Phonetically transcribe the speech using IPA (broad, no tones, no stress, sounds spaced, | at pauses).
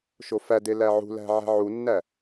ʃ o f æ d e l æ ʕ ṳ l æ̤ ʕ æ̤ ʕ u nː æ